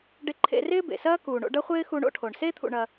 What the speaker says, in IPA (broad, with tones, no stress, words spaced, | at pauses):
ɖe˧ǃʰḛ˧rɪː˥ bḛ˩sɐː˥kuː˩ ɳo̰˧ɖɐ˥χʷɪː˥ xu˧ɳo̰˧ʈʰo˩ɳ se˥ t̪ʰṵ˧ɳɐ˧